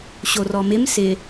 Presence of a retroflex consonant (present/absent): absent